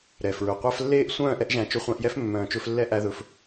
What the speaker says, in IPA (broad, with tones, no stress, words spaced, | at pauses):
ɾɛ˨fɹɵ˨ qʷæ˧flːeː˦˨ʔ sʷœ̃ː˦˨ʔɛ˧ʔʒæ̃˨ t͡ʃɵ˧χʷæ̃˧ʔjɛ˦f mːœ̃ː˨t͡ʃɵ˧flːɛ˦ ʔæ˧ðɵ˨˦f